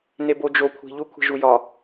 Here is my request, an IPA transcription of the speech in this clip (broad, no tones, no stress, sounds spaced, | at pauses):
n e b o d͡ʒ o kʷʰ i̤ ʎ u kʷʰ i̤ ʒ u j ɒ